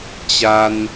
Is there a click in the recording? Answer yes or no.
no